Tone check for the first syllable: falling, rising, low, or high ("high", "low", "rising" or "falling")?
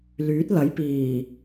rising